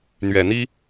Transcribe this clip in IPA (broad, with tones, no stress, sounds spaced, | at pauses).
n̪ ɥ ɛ˨˩ n̪ i˥